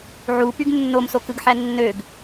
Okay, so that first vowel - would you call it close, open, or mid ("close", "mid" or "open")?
close